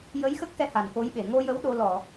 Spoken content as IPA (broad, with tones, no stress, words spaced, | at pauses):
jə˧˥j xə˦˥k̚xɛ˧ ha˨˩nko˧˥jɓe˨˩˨ ŋo˧jə˧˥w ɗo˧ lɔ˨˩˨